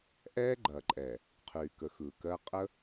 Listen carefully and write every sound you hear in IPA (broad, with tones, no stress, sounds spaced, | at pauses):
ʔ ɛː˦ ɡ͡ǃ ɐː˨ ǃʼ ɛ˨ | qʰ yː˨ k əː˨ x ɯː˨ k ɜː˦ qʼ ə˦